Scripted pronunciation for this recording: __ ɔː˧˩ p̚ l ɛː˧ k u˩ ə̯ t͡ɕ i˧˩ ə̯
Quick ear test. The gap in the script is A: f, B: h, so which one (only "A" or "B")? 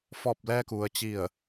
A